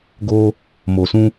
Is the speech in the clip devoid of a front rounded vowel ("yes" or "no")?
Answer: yes